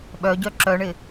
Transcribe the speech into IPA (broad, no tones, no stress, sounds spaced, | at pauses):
ɓ œ ɟ œ ǁ œ ɳ ɪ